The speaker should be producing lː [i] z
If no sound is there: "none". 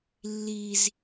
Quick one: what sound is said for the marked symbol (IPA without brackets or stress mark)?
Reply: i